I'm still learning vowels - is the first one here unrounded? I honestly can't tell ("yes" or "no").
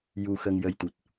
no